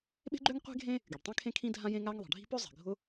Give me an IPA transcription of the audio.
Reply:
ɓ e̤˥ ɡ͡ǃ ø˥ ŋ qʷ e̤˥ ɡʱ ẽ˥ | ɡ y˩ ɖ tˤ ĩ˥ kʰ ẽ˥ kʰ ĩ˥ dʱ ã˥ j ẽ˥ ŋ a˥ ŋ ðˤ e̤˩ ɖʱ i̤˥ p ø˥ zˤ i̤˩ ɡʱ ʊ˥

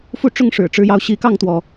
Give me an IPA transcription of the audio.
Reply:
f u˥˩ ʈ͡ʂ ʊ˥ ŋ ʂ ɻ̩˨˩ ʈ͡ʂ ɻ̩˧˥ j ɑ˧˥ ʊ̯ ɕ i˧˥ k ɑ˥˩ ŋ t̪ w ɔ˩

